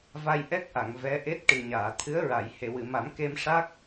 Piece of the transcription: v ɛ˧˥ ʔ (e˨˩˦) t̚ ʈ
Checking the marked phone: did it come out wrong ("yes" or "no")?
yes